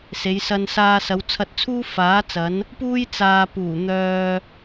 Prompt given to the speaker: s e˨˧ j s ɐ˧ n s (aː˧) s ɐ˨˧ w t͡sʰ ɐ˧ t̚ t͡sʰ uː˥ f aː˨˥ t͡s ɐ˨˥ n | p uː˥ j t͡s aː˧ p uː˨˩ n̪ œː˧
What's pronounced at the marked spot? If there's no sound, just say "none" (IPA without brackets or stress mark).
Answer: aː˧